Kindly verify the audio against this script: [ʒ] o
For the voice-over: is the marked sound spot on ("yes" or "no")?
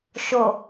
no